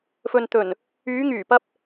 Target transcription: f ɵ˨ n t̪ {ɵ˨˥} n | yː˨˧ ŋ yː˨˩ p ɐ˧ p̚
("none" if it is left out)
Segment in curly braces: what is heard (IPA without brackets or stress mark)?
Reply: ɵ˨˩